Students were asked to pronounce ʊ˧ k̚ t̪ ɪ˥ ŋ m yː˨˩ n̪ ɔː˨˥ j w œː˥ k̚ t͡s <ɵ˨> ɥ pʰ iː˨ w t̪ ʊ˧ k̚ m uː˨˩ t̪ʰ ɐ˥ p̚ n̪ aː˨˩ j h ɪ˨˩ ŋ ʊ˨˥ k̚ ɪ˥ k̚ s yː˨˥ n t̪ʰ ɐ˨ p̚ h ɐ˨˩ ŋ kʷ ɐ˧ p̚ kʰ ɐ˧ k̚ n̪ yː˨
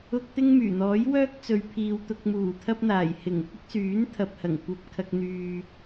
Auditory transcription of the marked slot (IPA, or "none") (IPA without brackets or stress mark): ɵ˨